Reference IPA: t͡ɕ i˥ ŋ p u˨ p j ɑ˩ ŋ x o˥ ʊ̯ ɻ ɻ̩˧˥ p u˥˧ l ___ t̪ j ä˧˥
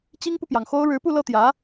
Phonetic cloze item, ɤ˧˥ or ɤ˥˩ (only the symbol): ɤ˥˩